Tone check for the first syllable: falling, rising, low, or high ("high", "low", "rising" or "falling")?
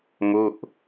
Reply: falling